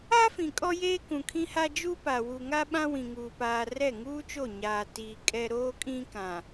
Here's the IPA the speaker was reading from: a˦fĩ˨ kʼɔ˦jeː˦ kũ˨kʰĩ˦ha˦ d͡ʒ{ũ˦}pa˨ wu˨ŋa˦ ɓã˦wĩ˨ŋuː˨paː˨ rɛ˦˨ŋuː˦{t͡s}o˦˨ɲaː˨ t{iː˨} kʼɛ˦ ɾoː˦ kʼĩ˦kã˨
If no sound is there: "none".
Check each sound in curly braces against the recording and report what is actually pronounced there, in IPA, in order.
u˦, t͡ʃ, iː˨

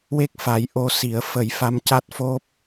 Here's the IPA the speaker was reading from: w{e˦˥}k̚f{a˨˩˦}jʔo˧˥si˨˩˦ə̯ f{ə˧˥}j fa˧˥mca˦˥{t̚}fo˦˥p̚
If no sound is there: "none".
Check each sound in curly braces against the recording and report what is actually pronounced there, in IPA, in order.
e˦˥, a˨˩˦, ə˨˩˦, t̚

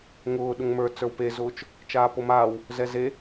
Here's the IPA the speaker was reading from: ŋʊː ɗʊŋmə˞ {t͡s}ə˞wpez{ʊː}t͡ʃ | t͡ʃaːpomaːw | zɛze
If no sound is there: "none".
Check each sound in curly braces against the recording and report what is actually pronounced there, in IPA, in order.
t͡s, ʊː

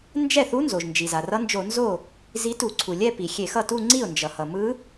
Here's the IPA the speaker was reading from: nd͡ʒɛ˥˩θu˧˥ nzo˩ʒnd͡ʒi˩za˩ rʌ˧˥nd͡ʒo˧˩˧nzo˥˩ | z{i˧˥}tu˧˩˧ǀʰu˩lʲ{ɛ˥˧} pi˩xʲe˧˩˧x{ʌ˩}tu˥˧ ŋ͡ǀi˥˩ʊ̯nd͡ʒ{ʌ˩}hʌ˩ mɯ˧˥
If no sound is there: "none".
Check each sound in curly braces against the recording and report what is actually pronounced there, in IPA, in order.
i˧˥, ɛ˥˧, ʌ˥˩, ʌ˩

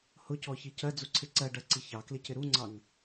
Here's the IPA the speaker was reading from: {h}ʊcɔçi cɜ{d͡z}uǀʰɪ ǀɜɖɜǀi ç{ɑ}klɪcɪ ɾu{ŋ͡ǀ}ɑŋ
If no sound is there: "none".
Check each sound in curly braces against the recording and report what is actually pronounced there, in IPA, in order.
h, d͡z, ɑ, ŋ͡ǀ

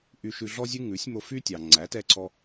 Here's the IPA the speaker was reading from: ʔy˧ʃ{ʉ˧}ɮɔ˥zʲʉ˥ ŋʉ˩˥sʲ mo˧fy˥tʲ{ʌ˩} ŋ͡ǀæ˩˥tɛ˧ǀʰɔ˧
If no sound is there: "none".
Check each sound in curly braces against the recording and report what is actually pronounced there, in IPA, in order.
ʉ˧, ɑ˩

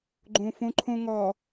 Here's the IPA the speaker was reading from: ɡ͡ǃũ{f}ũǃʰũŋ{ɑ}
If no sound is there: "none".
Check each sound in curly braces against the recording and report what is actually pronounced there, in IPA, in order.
f, ɔ

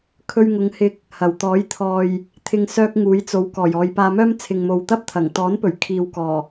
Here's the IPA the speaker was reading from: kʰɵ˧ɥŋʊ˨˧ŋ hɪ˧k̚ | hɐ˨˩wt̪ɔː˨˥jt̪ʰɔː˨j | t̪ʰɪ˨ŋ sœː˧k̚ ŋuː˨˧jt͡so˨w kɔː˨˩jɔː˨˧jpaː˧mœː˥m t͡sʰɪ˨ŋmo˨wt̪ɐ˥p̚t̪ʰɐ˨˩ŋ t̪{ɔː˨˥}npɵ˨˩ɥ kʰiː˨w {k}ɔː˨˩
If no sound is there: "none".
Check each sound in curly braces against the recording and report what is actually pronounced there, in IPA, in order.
ɔː˨˥, k

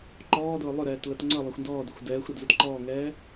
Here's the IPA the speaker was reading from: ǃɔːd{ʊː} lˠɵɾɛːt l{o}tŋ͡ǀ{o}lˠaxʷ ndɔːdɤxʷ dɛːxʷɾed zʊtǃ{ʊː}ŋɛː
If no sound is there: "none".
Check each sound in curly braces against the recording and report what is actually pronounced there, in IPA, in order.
ʊː, ɤ, ɤ, ɔː

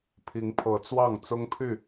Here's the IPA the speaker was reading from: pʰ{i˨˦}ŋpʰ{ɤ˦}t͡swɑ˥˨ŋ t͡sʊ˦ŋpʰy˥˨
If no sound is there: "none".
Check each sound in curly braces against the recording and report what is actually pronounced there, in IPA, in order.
i˨˦, ɤ˨˦

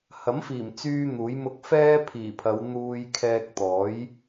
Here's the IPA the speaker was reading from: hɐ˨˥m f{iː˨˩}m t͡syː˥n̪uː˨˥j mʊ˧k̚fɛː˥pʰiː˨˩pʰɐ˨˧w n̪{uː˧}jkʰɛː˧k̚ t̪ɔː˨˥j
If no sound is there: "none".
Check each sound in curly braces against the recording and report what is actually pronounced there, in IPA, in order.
iː˨˩, uː˧

